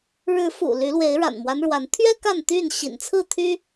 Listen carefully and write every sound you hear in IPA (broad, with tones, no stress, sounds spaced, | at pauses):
ɻ ɻ̩˨˦ f ṵ˨˩ l y˨˦ l w e˨˦ ɪ̯ ɻ a̰˨˩ n m w a˦ n ɻ w a˨˦ n t̪ʰ ɥ ɛ˦ k a˥˨ n t̪ y˥˨ n ɕ ḭ˨˩ n t͡sʰ ɹ̩˥˨ t̪ʰ y˦